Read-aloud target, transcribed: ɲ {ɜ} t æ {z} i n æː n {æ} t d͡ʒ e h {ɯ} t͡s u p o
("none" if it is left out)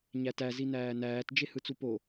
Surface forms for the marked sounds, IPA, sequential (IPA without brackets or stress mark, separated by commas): æ, z, æː, ɯ